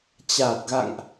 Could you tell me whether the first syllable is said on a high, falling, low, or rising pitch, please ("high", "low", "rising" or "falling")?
low